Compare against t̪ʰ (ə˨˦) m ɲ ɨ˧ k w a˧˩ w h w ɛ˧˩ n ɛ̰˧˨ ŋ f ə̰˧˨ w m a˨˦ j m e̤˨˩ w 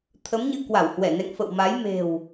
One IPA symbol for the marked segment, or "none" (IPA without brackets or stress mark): ə˨˦